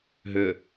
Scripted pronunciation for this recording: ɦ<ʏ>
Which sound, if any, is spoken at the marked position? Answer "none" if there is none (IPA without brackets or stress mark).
ʏ